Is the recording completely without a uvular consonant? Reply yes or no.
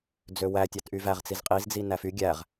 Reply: no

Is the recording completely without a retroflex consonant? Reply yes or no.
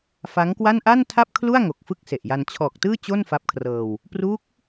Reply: yes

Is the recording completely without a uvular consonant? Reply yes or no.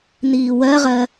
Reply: no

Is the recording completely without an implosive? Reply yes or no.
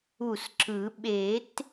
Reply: no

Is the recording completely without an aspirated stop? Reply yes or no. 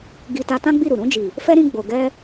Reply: yes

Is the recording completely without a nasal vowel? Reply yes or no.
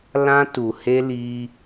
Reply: no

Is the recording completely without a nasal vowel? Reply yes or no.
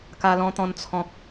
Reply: no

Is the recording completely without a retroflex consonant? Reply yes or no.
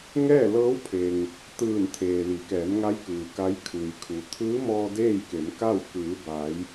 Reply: yes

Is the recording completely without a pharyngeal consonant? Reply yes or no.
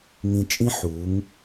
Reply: no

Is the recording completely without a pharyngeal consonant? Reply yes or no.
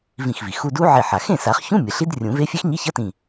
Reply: no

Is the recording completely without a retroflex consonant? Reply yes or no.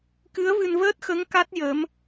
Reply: yes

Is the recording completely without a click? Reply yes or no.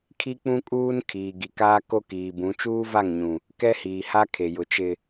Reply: yes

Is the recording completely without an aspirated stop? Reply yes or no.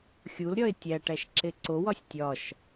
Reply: yes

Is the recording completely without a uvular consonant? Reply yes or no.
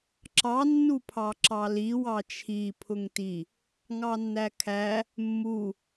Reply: yes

